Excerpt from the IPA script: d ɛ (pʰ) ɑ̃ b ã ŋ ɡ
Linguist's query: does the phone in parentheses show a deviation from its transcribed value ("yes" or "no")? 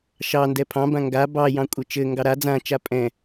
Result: no